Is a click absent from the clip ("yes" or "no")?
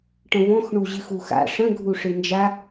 yes